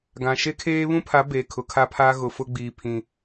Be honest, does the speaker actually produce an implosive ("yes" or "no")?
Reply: no